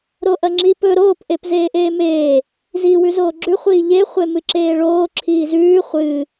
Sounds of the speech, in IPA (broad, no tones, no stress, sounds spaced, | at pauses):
ɾ o ʔ ɐ ŋ͡ǁ i p ɵ ɾ oː p ʔ e p z eː ʔ eː m eː | z iː w ʉ z oː ɡ͡ǁ ʉ χʷ iː ʎ e χʷ e m ɨ ǁ eː ɭ oː ǁʰ iː z ʉː χʷ ɨ